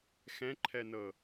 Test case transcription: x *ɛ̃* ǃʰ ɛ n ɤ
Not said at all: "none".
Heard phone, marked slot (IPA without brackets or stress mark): ɛ̃